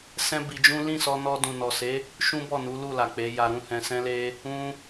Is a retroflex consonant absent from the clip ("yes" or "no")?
yes